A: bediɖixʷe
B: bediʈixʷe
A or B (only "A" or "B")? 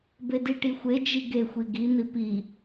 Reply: B